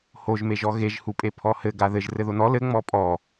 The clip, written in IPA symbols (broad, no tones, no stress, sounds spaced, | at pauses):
h o ʒ m e ʒ ɔ ɣ e ʒ h u pʼ e pʰ ɔ h ɘ ɡ a ð ɘ ʒ r ɘ ð o n ɔ l ɘ ŋ͡m ɔ pʼ ɔ